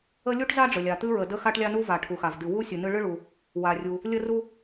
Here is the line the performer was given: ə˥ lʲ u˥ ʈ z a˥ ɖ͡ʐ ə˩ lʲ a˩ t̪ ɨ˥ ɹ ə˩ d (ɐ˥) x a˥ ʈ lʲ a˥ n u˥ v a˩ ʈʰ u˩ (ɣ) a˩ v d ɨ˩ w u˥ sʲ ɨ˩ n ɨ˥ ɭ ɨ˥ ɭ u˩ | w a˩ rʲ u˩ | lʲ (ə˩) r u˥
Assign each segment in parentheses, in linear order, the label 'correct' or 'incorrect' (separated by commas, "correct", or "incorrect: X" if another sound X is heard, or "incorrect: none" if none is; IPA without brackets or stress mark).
incorrect: ə˥, incorrect: x, incorrect: ə˥